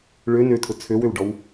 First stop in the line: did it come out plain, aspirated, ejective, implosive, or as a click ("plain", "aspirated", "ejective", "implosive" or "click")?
aspirated